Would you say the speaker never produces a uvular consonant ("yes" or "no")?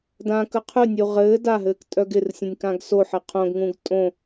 no